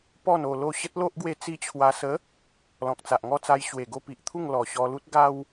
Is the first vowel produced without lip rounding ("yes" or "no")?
no